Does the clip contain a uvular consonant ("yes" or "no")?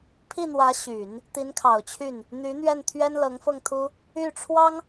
no